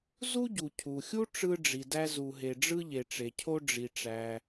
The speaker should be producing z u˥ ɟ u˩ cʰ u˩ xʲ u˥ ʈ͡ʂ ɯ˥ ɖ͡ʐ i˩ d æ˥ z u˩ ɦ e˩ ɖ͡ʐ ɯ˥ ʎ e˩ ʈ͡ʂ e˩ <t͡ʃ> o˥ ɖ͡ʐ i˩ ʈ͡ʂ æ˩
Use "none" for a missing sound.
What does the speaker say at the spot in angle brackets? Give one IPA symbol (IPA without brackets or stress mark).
cʰ